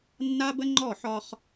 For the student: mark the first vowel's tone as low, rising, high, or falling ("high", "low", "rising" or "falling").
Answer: high